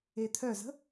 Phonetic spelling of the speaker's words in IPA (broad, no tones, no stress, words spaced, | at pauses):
et̪ʰœzə̤